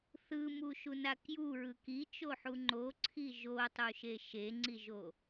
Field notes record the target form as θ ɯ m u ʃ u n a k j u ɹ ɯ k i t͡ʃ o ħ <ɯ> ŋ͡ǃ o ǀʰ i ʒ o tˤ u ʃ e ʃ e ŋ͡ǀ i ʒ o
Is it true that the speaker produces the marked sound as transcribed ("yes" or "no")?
no